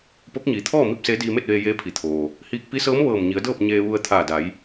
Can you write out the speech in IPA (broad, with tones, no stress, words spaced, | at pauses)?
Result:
po˧˥k̚ɲiː˩˧ t̪ʰɔː˥˨ mi˥˨p̚seː˧˥ diː˧me˥˨t̚ʋeː˧ jeː˧pʰi˩ t̪ʰoː˩ | hiː˧k̚pi˧˥sɤː˧˥m ʋɤː˧˩mɲi˩˧ə̯dɤː˥˨p̚ ɲeː˧ʋu˧ə̯ t̪ʰaː˧˩da˩˧j